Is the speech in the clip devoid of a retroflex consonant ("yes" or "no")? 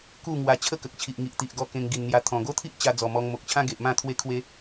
yes